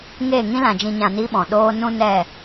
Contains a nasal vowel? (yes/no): yes